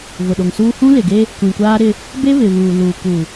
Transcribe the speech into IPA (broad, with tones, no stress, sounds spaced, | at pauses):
v ʊ˨ ɗ o˨ ŋ s uː˦ h ũ˦ l ɪ˨ ɡ e˦ | kʷ ĩ˨ kʷ aː˦ ɾ ɪ˦ | b e˦ β ɪ˨ β uː˨ l uː˨ k u˨